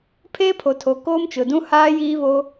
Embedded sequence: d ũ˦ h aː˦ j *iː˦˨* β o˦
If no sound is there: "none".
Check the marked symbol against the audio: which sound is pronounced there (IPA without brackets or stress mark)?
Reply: iː˦